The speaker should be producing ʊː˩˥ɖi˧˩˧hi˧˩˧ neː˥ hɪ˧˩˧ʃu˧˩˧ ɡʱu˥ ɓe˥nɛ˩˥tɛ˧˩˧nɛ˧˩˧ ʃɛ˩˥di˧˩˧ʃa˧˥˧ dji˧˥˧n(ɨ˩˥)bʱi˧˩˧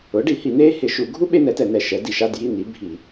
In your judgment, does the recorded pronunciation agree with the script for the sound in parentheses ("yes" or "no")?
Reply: no